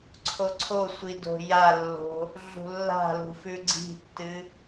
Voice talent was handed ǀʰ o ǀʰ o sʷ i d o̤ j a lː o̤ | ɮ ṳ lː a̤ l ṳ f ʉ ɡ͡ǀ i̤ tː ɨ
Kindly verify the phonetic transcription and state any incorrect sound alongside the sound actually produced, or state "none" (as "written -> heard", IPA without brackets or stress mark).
none